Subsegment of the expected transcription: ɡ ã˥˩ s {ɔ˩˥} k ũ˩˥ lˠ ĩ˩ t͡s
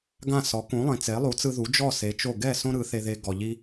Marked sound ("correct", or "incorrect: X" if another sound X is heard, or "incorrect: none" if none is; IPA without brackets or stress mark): correct